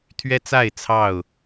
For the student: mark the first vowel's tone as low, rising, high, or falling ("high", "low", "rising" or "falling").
high